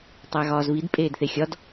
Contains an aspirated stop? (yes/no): no